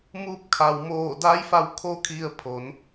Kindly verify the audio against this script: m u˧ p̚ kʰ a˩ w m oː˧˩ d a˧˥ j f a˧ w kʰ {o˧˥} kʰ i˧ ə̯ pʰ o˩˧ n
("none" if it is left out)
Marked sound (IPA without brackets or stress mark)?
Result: o˧˥